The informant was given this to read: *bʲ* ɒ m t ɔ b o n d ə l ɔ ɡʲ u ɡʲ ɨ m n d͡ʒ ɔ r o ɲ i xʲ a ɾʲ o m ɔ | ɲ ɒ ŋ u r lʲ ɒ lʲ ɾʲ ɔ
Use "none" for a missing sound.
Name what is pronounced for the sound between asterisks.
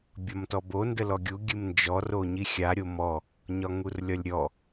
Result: bʲ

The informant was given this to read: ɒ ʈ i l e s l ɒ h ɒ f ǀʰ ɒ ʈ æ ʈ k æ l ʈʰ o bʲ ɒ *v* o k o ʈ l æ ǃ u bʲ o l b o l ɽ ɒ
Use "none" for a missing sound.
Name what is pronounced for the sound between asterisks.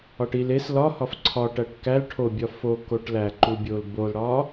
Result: f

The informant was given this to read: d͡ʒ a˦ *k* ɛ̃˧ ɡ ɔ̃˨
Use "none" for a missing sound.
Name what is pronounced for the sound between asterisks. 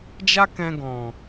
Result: k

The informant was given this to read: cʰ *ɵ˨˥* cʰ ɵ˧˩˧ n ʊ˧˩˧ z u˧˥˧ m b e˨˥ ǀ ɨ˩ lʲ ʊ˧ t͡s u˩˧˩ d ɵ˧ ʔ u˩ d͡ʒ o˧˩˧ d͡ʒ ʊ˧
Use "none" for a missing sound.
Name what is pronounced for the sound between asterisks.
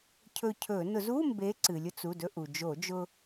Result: ɵ˧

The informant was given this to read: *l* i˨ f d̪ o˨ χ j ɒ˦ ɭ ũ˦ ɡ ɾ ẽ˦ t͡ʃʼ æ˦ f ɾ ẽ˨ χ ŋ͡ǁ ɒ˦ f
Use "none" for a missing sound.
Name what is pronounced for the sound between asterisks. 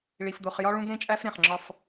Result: ɭ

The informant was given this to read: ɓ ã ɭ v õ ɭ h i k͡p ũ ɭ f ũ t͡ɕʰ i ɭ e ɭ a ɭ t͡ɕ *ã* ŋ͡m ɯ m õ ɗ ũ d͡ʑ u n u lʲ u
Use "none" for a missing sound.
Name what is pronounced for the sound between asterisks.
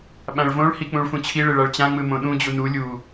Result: ã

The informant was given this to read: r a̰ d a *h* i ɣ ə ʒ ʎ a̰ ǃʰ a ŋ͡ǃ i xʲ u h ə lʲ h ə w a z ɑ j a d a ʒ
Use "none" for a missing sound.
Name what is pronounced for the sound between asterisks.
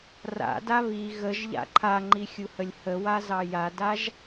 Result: β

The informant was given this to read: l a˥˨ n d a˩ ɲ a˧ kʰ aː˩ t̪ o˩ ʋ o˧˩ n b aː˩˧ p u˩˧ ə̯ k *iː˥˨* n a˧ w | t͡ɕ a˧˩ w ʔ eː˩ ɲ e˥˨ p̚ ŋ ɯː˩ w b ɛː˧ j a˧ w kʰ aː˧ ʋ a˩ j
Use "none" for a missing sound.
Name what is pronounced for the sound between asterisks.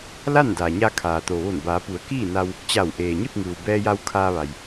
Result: iː˥˨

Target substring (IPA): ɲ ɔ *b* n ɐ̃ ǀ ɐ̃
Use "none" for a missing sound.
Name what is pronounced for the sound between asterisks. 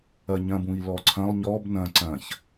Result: b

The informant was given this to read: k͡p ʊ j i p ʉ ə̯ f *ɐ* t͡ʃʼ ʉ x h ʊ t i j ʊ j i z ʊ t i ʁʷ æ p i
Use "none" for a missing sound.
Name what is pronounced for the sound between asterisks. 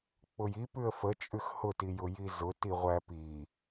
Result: ə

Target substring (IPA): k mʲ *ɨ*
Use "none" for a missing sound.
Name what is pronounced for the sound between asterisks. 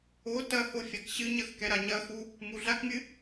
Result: ɨ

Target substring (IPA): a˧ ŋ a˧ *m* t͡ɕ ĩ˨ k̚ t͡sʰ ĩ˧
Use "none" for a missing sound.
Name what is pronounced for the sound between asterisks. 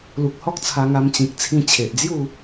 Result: m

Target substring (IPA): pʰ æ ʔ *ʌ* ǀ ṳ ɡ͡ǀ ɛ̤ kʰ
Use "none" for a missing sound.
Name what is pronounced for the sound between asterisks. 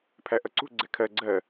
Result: ʌ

